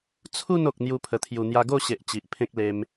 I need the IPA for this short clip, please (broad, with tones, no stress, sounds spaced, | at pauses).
t͡sʰ u˥˧ n o˨ k̚ n̪ j u˧ pʰ ə˨˩ t̪ʰ j u˨˩ n̪ j a˧ ɡ o˥˧ ɕ e˨ ʔ t͡ɕ i˨ ʔ pʰ ẽ˦ k̚ l e˧ m